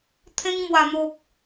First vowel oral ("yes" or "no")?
no